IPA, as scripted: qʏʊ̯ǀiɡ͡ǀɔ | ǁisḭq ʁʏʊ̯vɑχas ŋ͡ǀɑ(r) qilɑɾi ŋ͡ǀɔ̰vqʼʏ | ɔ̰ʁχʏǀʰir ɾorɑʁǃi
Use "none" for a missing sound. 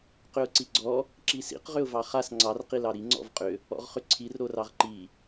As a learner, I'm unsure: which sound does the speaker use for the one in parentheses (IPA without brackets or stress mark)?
r